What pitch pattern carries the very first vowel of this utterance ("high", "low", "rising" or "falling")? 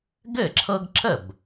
falling